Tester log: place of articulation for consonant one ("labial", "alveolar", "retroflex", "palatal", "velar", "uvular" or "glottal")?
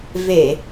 labial